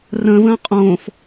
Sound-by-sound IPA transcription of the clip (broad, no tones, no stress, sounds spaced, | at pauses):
r ə̃ː v ə̃ː qʼ õː f